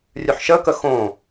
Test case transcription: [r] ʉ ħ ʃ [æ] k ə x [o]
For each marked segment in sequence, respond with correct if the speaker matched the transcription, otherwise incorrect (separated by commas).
incorrect, incorrect, incorrect